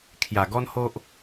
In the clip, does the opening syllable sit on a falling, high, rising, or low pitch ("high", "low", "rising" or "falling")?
low